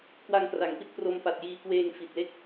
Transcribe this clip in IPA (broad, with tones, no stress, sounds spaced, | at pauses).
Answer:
k w a˧ ŋ k r a˩˦ ŋ p i˦˥ t̚ p r o˧ m p a˨˩ t̚ j iː˧ k w eː˧ ŋ f i˨˩ t̚ l e˥˩ k̚